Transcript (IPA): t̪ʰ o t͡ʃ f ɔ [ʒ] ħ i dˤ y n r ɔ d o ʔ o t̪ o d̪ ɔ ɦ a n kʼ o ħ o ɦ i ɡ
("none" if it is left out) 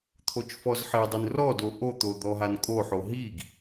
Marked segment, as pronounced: z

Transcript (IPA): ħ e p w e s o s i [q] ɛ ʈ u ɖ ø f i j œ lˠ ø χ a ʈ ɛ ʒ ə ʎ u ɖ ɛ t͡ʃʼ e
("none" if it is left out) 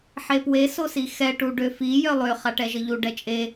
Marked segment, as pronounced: x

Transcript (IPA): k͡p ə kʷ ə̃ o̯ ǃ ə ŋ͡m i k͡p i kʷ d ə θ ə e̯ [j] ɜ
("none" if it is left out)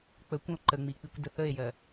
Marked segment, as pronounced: j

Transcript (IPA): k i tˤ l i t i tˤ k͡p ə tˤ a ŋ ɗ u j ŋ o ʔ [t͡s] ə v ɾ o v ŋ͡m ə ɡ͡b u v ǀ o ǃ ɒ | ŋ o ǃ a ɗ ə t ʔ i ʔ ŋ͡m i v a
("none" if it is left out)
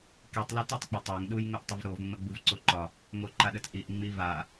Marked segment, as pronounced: tˤ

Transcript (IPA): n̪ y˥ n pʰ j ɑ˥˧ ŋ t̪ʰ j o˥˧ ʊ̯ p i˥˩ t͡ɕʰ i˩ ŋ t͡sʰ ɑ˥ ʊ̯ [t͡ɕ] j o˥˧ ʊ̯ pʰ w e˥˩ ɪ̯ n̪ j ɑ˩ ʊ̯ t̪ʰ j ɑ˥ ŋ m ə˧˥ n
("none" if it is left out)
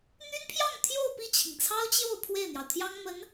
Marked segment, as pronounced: t͡ɕ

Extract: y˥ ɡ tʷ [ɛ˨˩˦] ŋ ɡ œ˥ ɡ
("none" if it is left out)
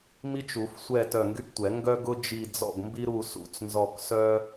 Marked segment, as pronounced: ɛ˨˩˦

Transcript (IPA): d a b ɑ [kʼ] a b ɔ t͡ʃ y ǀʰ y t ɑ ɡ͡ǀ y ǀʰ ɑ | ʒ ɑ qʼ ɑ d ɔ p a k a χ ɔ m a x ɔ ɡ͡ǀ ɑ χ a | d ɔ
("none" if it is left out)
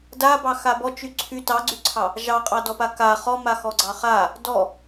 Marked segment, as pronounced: x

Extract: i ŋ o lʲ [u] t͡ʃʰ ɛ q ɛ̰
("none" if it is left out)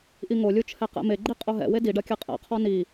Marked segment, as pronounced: u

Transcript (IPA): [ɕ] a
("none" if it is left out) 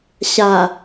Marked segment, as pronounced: ɕ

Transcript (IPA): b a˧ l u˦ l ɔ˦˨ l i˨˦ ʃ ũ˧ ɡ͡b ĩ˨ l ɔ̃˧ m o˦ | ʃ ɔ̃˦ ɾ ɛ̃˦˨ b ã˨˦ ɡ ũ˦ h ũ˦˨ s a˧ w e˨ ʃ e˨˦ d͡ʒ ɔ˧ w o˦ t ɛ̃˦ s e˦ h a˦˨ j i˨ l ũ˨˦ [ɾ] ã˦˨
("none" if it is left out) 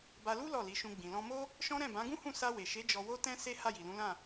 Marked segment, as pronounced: l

